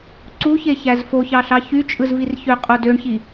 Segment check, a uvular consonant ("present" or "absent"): present